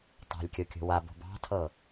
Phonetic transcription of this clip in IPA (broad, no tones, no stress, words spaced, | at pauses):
tˤa̤lʲkʲɤkʲo̤ wabo̤ bɑ̤tʰɤ